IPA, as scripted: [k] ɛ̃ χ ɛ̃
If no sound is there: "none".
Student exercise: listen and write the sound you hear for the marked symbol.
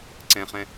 ǀ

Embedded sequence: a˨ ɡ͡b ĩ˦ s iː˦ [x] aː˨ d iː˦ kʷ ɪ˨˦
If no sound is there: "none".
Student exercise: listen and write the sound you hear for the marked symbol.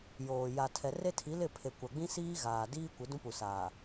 ɣ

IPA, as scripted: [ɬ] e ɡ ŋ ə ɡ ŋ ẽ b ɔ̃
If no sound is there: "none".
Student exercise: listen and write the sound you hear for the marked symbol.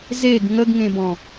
z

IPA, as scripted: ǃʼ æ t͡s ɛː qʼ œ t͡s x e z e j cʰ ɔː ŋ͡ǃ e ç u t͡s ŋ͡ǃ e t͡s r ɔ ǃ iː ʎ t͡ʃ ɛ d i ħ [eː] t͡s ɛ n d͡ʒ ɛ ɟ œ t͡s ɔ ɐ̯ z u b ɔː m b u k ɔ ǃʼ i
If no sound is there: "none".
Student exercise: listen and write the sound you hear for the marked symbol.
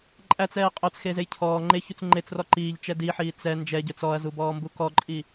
iː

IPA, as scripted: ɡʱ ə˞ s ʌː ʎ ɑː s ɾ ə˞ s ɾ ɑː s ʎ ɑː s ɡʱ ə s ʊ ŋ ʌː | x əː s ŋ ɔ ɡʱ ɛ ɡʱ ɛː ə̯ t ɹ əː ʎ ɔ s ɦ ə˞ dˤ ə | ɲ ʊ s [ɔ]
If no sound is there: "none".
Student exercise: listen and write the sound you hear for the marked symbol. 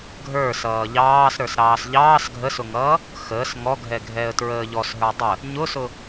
ʊ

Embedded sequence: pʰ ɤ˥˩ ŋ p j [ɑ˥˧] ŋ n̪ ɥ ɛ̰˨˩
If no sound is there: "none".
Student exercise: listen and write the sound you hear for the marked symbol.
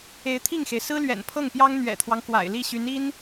ɑ˥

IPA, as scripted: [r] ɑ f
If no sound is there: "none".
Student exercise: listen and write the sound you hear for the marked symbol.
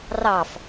r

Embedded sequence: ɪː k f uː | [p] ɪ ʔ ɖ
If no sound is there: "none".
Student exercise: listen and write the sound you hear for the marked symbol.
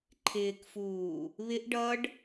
β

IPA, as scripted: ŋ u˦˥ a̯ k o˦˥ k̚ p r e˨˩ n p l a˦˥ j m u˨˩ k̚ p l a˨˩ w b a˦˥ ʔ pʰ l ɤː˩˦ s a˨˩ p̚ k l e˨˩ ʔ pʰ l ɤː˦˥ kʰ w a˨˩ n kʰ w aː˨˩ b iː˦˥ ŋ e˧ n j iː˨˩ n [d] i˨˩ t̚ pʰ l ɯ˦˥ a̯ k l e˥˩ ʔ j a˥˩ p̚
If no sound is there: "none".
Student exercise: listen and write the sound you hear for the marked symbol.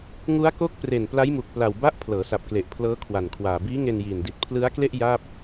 d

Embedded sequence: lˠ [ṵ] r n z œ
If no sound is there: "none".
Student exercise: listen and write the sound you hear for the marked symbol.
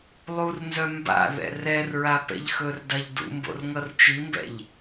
u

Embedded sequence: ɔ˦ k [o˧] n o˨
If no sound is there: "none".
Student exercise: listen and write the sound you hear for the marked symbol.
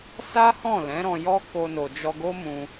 o˧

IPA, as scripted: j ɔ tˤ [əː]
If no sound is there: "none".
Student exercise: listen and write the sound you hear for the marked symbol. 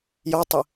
ə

